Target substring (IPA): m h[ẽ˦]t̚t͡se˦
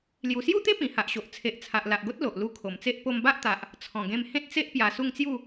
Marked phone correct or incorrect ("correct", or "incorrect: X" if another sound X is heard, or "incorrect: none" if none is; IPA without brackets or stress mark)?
correct